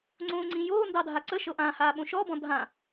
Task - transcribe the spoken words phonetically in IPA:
ŋ͡ǀõːŋ͡ǀĩjoː ndɑdʱaǀə ʃɤʔãhaːɓõ ʃɔbɔ̃ dʱã

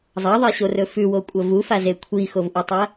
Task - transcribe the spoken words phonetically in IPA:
zˤɐðˤeɕorɵ fʉwokʷʼɐ vufaze kʷʰixovʔutˤɐ

